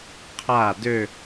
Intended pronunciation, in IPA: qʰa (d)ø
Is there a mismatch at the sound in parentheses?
no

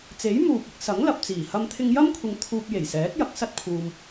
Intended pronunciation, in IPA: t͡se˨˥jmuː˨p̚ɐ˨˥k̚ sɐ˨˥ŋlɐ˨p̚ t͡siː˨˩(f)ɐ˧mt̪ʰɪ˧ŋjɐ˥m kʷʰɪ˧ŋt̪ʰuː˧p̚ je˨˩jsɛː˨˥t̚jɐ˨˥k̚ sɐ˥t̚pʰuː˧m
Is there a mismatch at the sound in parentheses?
yes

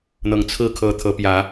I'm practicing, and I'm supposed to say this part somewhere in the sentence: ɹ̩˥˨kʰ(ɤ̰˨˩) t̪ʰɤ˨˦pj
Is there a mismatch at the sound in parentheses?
yes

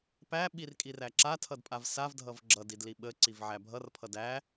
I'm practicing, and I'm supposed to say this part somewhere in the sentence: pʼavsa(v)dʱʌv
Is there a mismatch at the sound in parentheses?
no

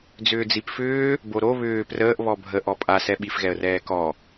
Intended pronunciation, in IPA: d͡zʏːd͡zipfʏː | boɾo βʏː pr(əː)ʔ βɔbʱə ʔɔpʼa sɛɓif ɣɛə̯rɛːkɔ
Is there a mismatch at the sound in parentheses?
no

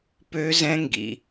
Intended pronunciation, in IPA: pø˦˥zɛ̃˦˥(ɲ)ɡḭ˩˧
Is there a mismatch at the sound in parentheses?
yes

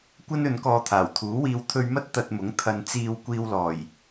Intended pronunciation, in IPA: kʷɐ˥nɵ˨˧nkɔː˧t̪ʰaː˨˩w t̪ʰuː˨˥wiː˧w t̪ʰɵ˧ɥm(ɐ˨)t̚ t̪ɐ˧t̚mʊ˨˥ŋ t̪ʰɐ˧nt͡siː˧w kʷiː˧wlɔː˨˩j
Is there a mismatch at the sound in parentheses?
yes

